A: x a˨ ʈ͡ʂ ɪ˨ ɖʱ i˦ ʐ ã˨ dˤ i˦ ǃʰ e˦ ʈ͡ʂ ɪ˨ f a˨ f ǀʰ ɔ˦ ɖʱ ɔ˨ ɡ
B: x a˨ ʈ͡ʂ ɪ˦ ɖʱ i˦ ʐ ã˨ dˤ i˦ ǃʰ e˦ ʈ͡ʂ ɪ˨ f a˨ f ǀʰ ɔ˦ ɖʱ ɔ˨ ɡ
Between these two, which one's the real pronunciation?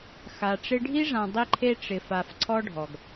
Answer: B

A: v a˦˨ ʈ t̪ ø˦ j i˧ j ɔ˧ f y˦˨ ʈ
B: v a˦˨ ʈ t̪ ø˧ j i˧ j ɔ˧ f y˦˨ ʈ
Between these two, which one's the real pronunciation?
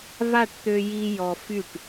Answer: B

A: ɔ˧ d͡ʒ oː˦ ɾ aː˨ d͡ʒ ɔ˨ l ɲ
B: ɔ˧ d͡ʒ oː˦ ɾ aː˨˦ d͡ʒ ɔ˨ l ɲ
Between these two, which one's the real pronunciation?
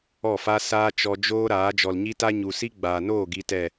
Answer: B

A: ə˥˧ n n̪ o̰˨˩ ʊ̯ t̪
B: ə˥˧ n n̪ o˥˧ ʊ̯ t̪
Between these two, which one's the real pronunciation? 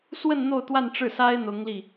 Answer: B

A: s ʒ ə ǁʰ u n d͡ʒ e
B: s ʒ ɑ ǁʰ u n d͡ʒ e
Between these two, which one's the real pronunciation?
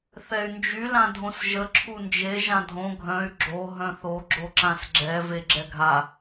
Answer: A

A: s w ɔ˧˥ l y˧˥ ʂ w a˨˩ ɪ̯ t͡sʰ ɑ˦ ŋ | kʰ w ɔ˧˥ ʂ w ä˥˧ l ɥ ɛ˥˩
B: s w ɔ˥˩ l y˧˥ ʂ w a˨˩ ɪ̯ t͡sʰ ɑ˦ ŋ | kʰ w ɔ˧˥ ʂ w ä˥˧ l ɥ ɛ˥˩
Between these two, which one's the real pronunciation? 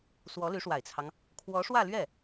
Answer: A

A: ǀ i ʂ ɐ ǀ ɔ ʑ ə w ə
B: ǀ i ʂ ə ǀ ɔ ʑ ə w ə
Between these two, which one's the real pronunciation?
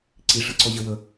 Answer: A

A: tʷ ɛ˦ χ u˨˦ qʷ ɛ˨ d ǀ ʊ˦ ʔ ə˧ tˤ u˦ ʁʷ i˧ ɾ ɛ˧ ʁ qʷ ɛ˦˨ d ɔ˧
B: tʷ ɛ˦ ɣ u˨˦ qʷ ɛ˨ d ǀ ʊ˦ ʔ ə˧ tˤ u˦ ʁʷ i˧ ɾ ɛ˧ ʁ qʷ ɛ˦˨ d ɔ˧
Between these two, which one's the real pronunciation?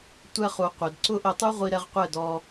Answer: A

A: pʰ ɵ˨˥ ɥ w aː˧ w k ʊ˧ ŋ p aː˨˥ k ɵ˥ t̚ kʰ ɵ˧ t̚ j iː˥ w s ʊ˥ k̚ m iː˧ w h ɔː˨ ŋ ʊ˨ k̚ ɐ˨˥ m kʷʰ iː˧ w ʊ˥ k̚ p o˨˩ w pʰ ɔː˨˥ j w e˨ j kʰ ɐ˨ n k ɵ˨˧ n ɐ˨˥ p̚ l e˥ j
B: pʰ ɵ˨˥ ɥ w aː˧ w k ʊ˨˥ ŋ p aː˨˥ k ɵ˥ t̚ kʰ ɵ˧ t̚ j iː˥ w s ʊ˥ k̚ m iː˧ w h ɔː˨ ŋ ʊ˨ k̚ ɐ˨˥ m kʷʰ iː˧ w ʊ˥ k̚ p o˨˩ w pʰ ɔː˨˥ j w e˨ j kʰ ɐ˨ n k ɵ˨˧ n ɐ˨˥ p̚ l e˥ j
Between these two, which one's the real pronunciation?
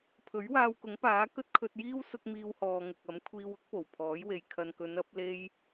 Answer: B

